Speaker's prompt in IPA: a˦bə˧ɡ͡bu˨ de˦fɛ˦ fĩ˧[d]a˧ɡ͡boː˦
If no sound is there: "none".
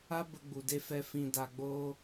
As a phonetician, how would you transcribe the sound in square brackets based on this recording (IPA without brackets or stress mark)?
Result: d